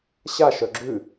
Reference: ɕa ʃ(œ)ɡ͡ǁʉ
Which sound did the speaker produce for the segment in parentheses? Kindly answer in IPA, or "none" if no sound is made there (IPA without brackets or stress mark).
œ